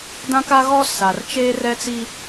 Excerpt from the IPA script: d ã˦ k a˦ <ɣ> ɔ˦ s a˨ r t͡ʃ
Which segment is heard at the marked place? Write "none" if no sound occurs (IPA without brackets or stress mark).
ɣ